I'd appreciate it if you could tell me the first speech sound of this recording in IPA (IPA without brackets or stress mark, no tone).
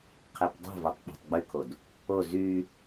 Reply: qʰ